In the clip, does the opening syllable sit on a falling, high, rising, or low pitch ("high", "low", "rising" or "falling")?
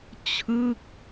falling